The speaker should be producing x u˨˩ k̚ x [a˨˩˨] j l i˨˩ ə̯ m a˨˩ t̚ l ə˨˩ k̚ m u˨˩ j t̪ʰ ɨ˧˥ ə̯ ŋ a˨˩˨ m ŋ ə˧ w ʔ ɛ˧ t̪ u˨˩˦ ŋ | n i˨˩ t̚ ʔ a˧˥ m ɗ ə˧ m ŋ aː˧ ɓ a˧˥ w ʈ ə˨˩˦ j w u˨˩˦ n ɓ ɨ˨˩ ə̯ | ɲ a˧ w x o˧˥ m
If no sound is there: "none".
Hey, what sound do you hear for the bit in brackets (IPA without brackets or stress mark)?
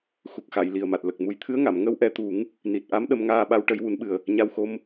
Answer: a˨˩˨